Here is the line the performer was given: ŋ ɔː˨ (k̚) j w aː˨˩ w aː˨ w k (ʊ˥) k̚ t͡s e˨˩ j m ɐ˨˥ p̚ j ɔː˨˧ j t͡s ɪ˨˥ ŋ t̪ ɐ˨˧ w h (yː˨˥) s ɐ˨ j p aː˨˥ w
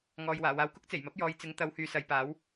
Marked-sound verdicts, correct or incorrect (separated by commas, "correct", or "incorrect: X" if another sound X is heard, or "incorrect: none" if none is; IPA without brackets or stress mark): incorrect: none, correct, incorrect: yː˨